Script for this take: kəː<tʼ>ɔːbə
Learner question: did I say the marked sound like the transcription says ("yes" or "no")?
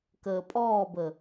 no